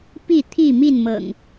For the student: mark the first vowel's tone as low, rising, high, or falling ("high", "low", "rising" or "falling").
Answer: falling